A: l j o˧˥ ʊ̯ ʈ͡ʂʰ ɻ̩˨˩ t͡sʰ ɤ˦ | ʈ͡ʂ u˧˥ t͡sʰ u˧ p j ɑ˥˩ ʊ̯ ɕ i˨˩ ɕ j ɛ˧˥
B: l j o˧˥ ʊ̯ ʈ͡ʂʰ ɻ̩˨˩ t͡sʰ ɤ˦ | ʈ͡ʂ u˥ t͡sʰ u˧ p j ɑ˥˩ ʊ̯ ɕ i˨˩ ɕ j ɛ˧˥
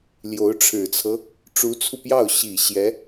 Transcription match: A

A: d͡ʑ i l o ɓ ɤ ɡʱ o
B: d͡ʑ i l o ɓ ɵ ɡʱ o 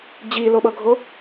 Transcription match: A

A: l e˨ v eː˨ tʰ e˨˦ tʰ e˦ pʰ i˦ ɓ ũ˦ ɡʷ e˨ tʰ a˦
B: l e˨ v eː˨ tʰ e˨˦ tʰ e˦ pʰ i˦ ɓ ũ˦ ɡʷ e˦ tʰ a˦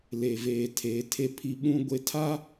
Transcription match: B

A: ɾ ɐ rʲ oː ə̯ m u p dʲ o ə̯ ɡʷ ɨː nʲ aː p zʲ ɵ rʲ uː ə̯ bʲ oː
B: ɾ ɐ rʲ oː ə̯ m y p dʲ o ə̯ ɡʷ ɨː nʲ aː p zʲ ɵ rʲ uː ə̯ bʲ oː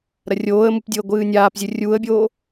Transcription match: A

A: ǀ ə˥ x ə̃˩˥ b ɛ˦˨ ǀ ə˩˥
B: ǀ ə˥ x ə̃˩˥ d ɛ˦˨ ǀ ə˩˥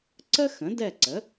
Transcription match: B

